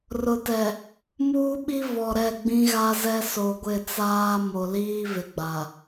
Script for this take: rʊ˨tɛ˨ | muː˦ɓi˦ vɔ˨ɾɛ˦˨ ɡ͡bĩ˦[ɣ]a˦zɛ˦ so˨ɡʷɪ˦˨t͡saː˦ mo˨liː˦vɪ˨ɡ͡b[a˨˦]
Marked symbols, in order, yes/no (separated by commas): yes, no